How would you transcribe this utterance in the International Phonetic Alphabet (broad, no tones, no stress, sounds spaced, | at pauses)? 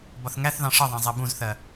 b ɒ θ ŋ æ θ ð ɑ̃ ʂ ʌ ðˤ æ̃ zˤ ɛ b ũ z θ ɜ